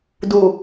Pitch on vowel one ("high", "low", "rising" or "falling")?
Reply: low